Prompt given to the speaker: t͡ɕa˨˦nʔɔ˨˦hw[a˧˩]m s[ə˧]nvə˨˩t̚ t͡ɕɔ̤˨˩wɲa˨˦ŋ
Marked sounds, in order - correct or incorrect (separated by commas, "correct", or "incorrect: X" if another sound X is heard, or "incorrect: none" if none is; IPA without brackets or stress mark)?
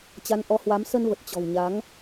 incorrect: a˨˦, correct